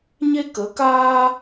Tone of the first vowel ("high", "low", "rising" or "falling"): high